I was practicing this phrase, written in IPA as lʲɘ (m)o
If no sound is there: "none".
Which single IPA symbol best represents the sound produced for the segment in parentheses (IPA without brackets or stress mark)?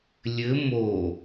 m